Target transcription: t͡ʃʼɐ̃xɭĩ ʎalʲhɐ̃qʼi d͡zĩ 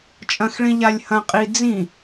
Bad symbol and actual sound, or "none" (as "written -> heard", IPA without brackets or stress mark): none